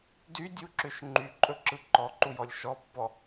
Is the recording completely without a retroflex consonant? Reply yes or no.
yes